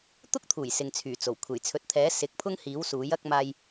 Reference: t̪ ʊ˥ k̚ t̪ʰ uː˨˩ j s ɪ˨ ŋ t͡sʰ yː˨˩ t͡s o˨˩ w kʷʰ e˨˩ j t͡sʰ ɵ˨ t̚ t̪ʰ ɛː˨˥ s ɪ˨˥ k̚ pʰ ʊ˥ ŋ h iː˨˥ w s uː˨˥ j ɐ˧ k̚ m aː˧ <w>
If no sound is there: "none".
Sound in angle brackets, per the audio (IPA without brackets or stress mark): j